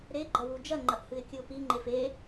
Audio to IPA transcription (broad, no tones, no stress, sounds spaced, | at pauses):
ɾ e ɡ͡ǃ ɐ w u d͡ʒ ɐ ŋ͡ǃ ɐ ʔ h ɨ ɪ̯ kʲ ɨ ʊ̯ p i ŋ͡ǃ e f e